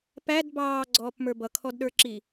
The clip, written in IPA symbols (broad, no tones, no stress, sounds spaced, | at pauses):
p æ d b ɑː ɡ͡ǀ ɔː p m ə˞ b ʌ kʰ ɔ d ɗ ə˞ ǁ i